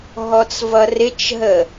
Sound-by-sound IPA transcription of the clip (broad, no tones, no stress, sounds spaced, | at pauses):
ɦ ɔ t͡s v ʌ r ɪ t͡ʃ ɦ ə